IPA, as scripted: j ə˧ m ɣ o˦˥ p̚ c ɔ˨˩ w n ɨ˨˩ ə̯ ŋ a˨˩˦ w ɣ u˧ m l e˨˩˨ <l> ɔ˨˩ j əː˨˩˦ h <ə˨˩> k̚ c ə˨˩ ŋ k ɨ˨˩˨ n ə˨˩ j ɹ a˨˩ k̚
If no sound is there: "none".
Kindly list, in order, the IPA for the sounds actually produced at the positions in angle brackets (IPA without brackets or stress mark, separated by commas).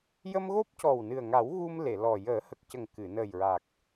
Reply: l, ə˨˩